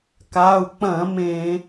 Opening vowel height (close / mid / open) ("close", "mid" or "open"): open